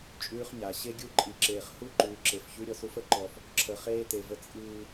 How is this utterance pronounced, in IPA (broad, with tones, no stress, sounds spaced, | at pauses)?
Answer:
t͡ʃʼ ʉː˦ χ ɲ a˨ ɕ e˦ ɡʲ u˦˨ ǃʼ i˨ ǁ eː˨ χ h u˦˨ ǃ ʉː˨ ǁ e˨ f ç ʉ˦ ɾʲ ɔ˦ s u˦ f ə˨ ǃ ɔ˦ f | ǁʰ ə˨ χ eː˦ t e˨ v ə˦ t͡sʼ ɨː˦